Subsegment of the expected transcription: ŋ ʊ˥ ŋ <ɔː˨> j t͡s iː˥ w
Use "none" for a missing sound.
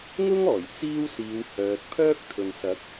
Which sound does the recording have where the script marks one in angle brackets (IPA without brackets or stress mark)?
ɔː˨˩